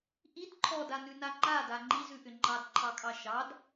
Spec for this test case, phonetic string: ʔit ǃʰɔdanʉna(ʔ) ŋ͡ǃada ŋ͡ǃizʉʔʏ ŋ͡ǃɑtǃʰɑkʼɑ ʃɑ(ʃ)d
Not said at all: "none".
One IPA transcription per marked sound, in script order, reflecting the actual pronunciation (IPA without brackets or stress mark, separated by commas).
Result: none, none